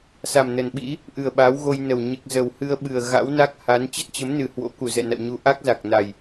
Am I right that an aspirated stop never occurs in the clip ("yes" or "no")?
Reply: yes